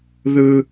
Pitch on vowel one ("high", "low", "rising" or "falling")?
high